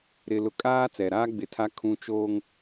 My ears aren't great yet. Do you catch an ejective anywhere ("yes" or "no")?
yes